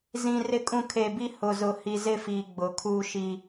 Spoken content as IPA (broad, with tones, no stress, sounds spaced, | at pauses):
z ĩ˨ r ɪ˨ kʼ ũ˨ kʰ e˨ b i˦ h ʊ˨ z ʊ˨ h i˨ z ɪ˦˨ f iː˨ ɡ͡b ʊ˨ kʰ uː˦ ʃ i˦